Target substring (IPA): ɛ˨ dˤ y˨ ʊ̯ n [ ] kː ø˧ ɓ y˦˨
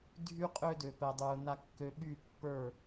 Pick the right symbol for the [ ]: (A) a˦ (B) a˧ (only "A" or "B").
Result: B